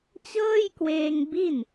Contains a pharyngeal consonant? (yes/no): no